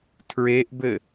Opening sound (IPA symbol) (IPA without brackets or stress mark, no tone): tʰ